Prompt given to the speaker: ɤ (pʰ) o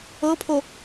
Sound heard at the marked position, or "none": pʰ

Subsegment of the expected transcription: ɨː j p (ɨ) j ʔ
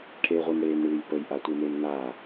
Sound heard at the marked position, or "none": ə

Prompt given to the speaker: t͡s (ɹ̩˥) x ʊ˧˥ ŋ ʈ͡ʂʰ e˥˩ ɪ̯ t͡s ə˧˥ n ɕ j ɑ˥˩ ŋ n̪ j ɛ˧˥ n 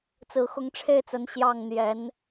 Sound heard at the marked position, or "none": ɹ̩˧˥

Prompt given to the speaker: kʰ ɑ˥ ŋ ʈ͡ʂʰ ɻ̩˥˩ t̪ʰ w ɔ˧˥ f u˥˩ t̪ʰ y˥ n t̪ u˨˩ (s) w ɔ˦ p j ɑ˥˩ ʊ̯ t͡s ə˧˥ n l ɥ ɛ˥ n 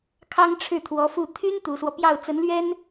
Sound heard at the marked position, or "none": s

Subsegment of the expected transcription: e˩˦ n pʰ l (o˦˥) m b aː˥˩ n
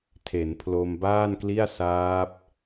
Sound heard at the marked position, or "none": o˧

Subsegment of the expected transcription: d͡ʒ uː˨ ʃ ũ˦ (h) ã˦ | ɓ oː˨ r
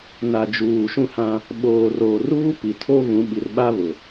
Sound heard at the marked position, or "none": h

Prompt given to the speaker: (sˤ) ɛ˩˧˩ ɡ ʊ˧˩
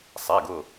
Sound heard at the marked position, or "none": sˤ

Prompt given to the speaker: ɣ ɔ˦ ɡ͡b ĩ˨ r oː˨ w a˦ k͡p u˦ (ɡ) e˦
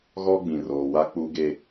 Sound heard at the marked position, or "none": ɡ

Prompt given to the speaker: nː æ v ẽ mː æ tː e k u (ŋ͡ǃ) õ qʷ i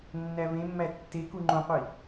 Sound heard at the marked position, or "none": ŋ͡ǃ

